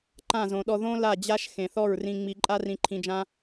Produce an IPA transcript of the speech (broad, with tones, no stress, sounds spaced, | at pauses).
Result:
ǃ ã˦˨ z õ˨ ɗ ɔ˧ ð õ˦ l a˦˨ d͡ʑ a˦ ʃ x ẽ˨ θ ɔ˦˨ ɹ r ĩ˧ ŋ͡m i˧ ǃʼ a˦ r ĩ˧ ǃʰ ĩ˧ d͡ʒ ã˦